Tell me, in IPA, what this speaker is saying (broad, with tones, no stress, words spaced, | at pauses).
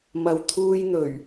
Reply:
mɐ˨wt̪ʰuː˧jn̪ɵ˨˩ɥ